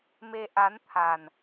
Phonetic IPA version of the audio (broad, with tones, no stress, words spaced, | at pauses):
me˧ʔa˨˦nt̪ʰa˨˩n